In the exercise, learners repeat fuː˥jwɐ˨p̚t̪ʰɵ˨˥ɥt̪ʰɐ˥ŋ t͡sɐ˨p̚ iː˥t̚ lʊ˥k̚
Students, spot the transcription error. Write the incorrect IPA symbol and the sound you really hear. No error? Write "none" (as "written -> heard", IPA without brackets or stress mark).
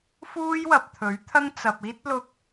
none